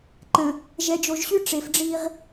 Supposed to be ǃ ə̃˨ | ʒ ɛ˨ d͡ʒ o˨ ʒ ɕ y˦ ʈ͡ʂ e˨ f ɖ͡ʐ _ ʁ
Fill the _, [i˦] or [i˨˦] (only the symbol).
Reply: i˦